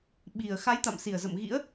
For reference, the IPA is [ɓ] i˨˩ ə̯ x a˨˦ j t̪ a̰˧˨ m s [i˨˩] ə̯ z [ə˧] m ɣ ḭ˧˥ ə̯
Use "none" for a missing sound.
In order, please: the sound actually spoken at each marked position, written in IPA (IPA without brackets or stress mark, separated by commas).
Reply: ɓ, i˨˩, ə̰˧˨